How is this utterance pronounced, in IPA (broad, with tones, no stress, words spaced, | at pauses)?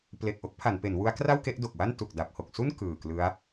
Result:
ple˨˩k̚ʔo˥˩k̚ pʰa˩˦npe˩˦nwu˦˥a̯kra˥˩w ke˦˥ʔdo˨˩k̚wa˥˩n tu˨˩k̚da˨˩p̚ho˨˩k̚su˥˩n kɯː˨˩klɯ˦˥a̯